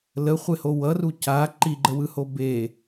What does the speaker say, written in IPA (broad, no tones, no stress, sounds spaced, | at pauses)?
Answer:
l ə χʷ e h o w ʌ r u c a ǃ i ɡ͡ǃ ə w ɯ h o b e